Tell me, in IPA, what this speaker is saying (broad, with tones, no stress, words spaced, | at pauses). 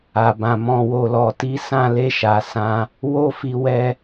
a˨bã˨ mɔ̃˨wo˨lɔ˨ti˨˦ sã˦˨le˧ʃa˨ sã˧ | wo˦fi˧wɛ˧